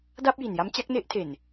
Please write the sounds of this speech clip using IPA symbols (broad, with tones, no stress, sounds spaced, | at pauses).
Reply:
d a˥˩ p̚ j i˨˩ n j a˦˥ m t͡ɕ a˦˥ k̚ n e˦˥ ʔ tʰ e˨˩ n